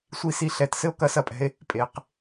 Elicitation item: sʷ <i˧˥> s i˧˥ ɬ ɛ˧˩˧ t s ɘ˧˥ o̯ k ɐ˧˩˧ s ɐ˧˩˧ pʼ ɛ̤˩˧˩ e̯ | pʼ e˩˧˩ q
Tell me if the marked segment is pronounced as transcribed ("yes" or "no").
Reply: yes